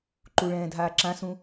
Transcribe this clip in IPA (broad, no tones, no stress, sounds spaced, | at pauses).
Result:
ǃ u ɭ ɛ̃ː dʱ aː ǁ ã s ũ